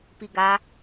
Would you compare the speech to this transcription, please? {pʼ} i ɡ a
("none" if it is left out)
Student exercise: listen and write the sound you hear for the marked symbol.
p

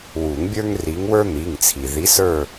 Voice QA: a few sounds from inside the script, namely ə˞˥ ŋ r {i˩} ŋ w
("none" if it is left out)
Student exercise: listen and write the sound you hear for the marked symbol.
i˨˦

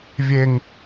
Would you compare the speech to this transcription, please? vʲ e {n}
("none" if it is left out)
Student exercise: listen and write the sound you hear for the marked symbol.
ŋ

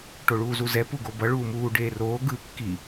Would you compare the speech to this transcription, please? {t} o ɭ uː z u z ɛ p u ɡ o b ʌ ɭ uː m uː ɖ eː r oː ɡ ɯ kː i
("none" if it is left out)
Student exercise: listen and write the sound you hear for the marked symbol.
ʈ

